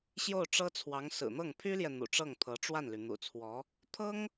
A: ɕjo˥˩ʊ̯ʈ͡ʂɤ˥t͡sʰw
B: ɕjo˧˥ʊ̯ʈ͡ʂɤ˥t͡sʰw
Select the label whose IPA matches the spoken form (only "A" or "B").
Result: A